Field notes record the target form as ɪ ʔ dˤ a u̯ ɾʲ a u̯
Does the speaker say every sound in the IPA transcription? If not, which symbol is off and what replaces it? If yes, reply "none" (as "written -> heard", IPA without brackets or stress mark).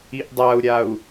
ɪ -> i